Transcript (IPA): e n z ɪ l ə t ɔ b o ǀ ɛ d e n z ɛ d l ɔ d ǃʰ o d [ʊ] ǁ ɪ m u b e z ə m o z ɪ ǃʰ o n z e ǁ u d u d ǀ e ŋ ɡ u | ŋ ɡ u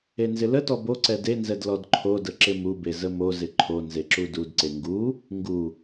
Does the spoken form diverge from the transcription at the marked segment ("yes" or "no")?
yes